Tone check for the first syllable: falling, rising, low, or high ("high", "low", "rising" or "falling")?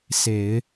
low